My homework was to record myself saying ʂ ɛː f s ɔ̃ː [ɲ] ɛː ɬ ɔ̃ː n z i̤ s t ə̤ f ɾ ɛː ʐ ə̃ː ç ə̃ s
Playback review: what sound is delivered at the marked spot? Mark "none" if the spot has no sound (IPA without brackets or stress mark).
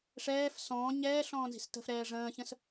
ɲ